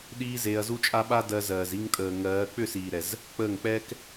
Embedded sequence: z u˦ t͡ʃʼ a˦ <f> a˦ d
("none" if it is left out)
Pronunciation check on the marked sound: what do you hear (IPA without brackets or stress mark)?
ɓ